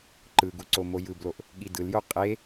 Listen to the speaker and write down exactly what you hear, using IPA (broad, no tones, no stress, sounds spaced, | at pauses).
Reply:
ǃ ɯ ɡ u ǀ o m o j ɯ b l o ʔ | ɠ i d ɯ l j o qʼ e